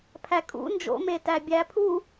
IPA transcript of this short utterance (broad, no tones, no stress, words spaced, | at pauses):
pʰækʼṵ nd͡ʒo̰ metæbʲæpʰu